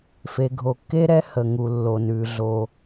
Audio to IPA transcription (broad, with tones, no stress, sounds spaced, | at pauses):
f e˩ ɡʱ o˩ kː e˥ ɾ ɛ˥ h ə˩ ŋ u˩ lː o˩ n ʉ˩ ɮ o˩